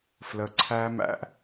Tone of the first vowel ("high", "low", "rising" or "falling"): low